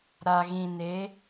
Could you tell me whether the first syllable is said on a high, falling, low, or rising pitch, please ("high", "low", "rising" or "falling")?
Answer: low